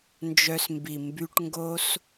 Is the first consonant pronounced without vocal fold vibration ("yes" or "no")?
no